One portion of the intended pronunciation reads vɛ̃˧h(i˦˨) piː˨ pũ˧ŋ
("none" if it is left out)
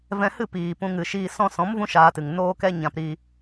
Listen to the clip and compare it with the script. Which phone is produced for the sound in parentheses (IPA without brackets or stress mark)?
ɨ˦˨